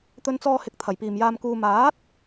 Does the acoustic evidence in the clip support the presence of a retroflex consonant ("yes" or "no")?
no